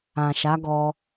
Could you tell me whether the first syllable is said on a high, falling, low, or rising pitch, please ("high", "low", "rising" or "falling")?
low